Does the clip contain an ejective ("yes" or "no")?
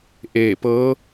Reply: no